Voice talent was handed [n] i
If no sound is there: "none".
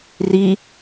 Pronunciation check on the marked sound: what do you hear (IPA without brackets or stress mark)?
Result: r